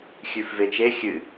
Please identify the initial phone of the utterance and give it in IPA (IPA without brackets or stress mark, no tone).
xʲ